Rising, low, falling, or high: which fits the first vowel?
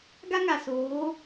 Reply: high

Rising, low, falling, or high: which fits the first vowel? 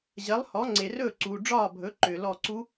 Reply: rising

